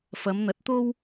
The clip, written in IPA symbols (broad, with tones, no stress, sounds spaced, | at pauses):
f ɐ˨˧ m n̪ ɐ˨˥ t̚ t̪ o˥ w